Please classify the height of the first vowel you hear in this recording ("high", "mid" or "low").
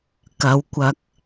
low